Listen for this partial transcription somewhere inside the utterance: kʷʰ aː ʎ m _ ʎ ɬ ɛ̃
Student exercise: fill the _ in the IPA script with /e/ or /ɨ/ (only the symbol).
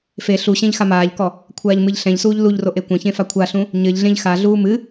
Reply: ɨ